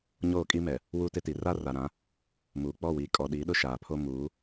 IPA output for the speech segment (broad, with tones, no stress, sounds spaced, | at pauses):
ɲ oː˦˨ kʼ i˦ m ɛ˨ | w u˦ t ɪ˦ t i˨ r a˦ r a˨ ɾ ã˨˦ | m uː˨ k͡p ɔ˦˨ w iː˨ kʼ ɔ˨ ɗ i˨˦ ɗ ʊ˦ ʃ aː˨ pʰ o˦ m uː˨˦